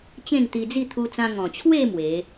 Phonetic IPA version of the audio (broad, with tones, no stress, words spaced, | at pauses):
t͡ɕẽ˥˧nt̪i˧d͡zi˥˧ t̪ʰu˧t͡sã˧ ŋɔ̃˨˩t͡ɕʰwe˥˧ mwe˨˦